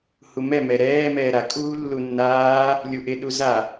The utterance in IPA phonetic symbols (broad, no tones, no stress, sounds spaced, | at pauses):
h u m ɛ m ɛ ɾ ɛː m ɛː ɾ a kʼ uː lː u nː aː | lʲ u ʔ ɪ ɗ u z a